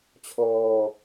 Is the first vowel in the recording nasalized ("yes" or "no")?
no